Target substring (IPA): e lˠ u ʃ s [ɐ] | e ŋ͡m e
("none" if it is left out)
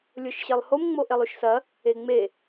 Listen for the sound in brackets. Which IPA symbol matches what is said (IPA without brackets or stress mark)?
ɐ